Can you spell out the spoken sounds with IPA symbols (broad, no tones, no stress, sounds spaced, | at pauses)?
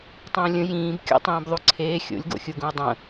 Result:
tˤ ə̃ː lʲ ə̃ j ĩː b kʲ o̰ tˤ ĩː b ðˤ u ǀʰ eː xʲ o̰ lʲ ɡ o̰ xʲ u ɡ ũ ə̯ dˤ ə̃